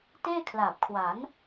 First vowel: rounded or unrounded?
unrounded